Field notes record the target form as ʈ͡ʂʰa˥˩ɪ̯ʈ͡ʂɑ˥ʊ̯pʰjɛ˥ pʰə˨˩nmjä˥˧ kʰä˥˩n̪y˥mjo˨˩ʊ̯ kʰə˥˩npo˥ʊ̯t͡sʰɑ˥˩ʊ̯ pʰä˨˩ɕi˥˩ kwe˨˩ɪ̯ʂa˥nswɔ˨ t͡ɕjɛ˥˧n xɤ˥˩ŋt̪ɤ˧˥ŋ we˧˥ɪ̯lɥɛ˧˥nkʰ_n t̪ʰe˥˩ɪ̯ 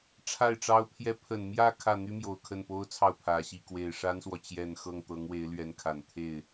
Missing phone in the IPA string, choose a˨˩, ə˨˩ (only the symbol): a˨˩